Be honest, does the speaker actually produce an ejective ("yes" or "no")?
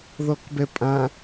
yes